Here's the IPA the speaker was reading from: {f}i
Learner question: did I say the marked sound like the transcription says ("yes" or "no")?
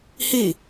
no